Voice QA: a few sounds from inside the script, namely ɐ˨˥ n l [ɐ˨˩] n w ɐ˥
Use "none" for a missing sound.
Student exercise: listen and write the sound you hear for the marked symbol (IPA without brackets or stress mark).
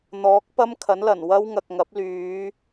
ɐ˨˩